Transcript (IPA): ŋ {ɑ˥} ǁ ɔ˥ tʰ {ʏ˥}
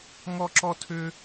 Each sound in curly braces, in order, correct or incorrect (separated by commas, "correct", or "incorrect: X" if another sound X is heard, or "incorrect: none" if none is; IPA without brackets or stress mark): incorrect: ɔ˥, correct